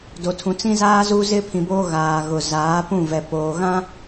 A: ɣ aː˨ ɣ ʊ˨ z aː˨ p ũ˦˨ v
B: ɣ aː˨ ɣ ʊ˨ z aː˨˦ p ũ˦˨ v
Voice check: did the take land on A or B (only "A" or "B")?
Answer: B